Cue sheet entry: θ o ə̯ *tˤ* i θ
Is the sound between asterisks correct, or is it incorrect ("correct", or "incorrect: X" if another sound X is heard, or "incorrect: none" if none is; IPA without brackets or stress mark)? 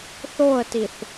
incorrect: t